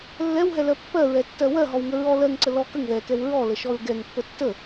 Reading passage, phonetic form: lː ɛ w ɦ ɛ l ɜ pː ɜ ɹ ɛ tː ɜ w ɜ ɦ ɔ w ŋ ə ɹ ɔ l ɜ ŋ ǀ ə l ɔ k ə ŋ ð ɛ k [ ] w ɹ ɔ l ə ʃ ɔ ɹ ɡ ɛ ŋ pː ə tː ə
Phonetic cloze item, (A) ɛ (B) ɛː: A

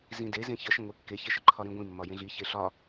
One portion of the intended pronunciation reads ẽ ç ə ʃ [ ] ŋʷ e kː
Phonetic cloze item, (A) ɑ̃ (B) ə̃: B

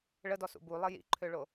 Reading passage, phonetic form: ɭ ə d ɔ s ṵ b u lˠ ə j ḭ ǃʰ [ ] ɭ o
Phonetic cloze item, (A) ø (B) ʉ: A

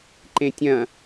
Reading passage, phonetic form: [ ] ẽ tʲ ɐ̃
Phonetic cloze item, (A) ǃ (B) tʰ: A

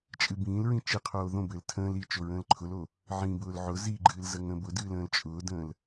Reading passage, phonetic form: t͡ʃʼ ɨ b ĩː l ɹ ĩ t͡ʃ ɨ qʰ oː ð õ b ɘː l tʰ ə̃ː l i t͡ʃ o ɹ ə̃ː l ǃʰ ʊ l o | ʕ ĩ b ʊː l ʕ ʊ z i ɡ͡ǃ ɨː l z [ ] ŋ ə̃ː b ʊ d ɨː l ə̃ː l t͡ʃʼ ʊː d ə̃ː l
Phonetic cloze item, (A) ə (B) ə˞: A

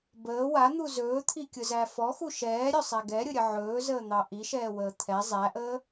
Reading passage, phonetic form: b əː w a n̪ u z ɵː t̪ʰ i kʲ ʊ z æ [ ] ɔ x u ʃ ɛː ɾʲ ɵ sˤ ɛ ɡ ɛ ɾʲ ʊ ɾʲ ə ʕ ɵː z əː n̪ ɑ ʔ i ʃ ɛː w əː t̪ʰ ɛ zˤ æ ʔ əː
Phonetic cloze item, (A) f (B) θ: A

